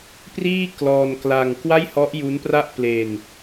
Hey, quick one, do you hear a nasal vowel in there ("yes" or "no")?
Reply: no